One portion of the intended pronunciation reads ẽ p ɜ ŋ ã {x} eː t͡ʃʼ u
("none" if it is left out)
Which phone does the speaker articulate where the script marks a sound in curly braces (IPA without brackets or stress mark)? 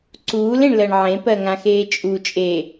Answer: x